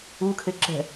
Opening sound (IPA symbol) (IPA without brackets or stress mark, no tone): u